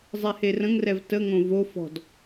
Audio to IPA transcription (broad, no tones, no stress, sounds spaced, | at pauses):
zˤ ɛ h e r ə̃ ŋ r ɛ v t ə ŋ õ v o f ɔ̤ d